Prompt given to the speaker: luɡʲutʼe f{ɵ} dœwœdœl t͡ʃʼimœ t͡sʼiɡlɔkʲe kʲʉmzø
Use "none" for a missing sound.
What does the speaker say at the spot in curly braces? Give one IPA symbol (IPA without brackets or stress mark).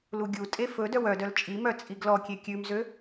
ɵ